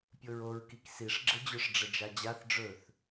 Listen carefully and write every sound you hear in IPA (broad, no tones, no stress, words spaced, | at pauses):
pʲoɹoɹkik siʂ ɡ͡ǁɘd͡ʑʊʂ ɖ͡ʐəd͡ʒad͡ʑaθ ɖ͡ʐɵθ